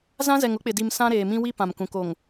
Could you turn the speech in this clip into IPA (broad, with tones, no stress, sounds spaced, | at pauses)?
z ã˦ z ɛ˨ ŋ ʊ˦ k͡p ɪ˨ d i˨ m s ã˦ ɾ eː˨ m ĩ˦ w i˦ p ã˨ m k ũ˨ k o˨ ŋ